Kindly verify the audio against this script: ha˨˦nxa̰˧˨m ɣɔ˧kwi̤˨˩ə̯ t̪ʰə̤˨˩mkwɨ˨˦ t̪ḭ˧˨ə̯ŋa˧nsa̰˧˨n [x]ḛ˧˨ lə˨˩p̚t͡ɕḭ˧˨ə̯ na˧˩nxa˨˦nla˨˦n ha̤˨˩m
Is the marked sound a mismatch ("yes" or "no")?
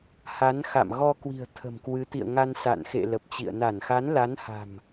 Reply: no